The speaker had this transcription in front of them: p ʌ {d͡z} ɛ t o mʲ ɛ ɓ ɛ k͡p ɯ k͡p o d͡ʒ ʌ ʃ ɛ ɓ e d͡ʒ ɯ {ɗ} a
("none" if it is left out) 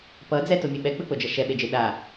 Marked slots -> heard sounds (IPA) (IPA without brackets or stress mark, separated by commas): d͡z, ɗ